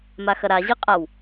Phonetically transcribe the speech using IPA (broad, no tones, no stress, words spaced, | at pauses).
maxɐɾaʑi qʼaw